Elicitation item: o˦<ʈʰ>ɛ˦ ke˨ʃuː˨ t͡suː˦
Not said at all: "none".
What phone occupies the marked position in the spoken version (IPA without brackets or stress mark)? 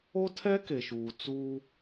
tʰ